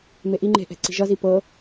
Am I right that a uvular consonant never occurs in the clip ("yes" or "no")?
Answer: yes